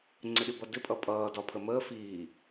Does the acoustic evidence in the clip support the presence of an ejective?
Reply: yes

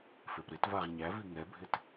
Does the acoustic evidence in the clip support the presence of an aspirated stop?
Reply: no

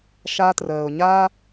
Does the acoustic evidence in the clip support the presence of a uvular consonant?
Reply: no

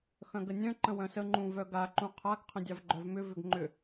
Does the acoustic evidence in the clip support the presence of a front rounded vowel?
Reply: yes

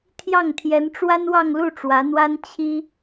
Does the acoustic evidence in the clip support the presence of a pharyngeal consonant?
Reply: no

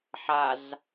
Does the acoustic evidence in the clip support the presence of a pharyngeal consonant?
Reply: yes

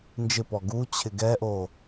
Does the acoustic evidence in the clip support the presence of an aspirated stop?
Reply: yes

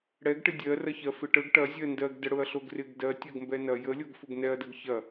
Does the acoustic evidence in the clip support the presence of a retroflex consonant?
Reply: yes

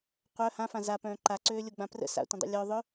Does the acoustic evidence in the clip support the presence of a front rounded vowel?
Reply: yes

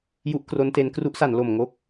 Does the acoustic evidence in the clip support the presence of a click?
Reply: no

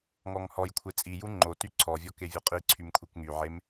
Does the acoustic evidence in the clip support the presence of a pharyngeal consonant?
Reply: yes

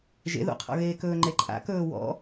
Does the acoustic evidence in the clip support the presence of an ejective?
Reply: yes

